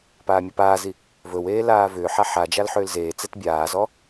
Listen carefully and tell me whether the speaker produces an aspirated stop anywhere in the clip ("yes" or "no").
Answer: no